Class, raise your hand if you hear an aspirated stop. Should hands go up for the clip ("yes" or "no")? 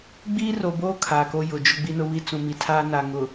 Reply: yes